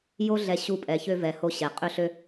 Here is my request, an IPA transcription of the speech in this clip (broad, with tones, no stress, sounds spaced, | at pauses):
j o˥ ɮ ɛ˧ ɕ u˧ pʼ ɛ˩ ç ø˧ v ɛ˩ h o˧ ɕ ɛ˩ qʼ ø˧ ɬ ø˧